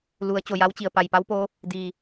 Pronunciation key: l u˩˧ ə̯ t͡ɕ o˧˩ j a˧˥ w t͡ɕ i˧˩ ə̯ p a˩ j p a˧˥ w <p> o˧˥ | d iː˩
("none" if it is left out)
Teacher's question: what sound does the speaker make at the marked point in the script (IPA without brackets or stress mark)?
p